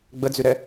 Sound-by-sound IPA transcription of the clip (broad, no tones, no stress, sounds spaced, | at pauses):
ɡ͡b ə d͡z y ɾ ɛ